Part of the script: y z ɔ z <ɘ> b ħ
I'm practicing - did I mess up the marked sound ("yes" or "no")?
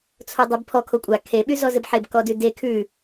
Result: no